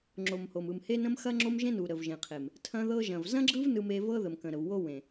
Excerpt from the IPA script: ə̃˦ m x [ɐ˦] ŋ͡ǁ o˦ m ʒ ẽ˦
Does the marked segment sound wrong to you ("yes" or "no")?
no